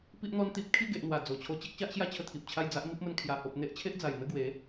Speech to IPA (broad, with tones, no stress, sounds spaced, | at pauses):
p i˦ ʔ n̪ ɔ˦ n t̪ i˦ p̚ kʰ i˥˧ ɡ e˨ ʔ n̪ w a˨˩ d͡z o˨˩ t͡ɕʰ o˧ t͡ɕ e˦ k̚ ɕ a˦ ʔ ɕ j a˥˧ t͡ɕʰ ə˥˧ t̪ʰ i˨ p̚ t͡ɕʰ a˥˧ j d͡z a˦ ʔ m i˦ p̚ m ə˧ n kʰ j a˨˩ h o˨ p̚ n̪ e˦ ʔ t͡ɕʰ e˦ ʔ d͡z a˨˩ j n̪ ə˥˧ ɡ w e˨˦